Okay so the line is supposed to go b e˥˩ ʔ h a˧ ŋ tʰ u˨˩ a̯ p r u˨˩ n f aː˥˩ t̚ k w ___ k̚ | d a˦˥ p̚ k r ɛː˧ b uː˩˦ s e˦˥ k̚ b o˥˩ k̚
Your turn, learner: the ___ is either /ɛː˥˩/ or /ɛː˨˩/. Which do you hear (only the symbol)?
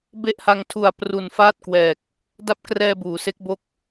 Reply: ɛː˨˩